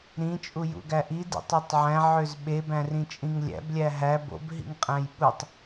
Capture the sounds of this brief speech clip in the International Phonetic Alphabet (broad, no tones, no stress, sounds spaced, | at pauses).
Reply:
ɾ ĩ t͡ʃʼ u j ṵ ɡ æ ʔ i d ḭ tˤ ø tˤ ʕ æ̃ ʕ ø z ɓ e b æ̃ r ĩ t͡ʃʼ ĩ ŋ lʲ æ̰ b lʲ æ ɦ æ b o̰ b ɦ ḭ ŋ qʼ æ̃ j ɓ u tˤ